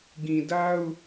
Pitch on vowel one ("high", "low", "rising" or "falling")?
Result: low